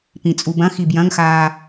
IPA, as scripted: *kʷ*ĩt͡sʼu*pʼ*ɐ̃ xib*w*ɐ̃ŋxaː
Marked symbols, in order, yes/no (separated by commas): no, no, no